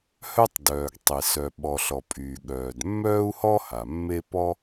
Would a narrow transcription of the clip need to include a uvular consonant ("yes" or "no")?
no